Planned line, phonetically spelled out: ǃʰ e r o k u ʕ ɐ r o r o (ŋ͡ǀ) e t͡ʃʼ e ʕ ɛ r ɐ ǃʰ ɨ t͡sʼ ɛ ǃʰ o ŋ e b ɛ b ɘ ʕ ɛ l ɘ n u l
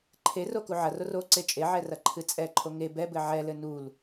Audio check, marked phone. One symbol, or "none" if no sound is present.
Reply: ǀ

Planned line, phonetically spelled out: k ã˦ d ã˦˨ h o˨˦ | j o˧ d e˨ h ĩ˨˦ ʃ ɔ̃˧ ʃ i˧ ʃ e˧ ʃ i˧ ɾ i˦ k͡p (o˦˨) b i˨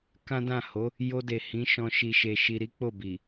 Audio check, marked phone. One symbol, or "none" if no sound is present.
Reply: o˦˨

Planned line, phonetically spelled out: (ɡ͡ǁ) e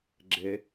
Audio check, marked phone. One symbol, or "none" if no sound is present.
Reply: ɡ͡ǁ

